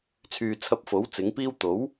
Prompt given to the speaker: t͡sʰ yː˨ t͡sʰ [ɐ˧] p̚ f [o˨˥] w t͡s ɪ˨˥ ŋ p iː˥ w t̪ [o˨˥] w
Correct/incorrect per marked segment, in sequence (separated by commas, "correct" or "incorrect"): correct, correct, correct